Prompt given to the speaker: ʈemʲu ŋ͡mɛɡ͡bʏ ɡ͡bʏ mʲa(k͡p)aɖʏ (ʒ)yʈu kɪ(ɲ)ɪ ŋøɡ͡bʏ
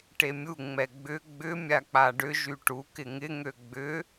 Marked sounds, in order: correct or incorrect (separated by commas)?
correct, correct, incorrect